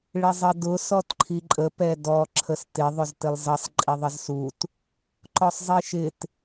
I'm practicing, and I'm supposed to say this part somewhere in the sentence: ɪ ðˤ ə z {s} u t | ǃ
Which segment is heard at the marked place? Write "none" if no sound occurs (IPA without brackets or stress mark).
s